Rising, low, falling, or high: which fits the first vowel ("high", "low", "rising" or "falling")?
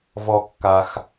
low